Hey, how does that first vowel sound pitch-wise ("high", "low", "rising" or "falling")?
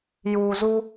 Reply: low